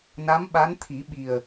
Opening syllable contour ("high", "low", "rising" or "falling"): rising